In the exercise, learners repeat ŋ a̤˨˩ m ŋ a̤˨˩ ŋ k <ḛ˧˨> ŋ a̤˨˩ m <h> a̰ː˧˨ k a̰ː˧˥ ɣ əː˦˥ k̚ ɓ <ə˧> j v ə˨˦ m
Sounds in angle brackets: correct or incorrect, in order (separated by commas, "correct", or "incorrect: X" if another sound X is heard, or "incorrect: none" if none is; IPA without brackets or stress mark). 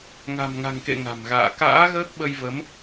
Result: correct, incorrect: ɣ, correct